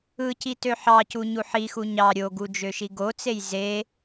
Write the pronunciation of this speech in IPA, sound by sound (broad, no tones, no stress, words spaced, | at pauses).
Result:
ɯci tøħɑcu ɲuħixu ɲɑ ɾʲoɡu d͡ʒøʃiɡot͡sej ze